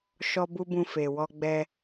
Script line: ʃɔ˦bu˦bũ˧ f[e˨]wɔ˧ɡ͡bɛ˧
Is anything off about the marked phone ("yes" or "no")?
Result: no